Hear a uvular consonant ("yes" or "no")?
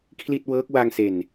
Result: no